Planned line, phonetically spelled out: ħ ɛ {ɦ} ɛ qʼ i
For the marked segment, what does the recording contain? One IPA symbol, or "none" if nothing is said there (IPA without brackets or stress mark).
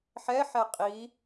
ħ